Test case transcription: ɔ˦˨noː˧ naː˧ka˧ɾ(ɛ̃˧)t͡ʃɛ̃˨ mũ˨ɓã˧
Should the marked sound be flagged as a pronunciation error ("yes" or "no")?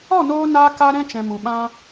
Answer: no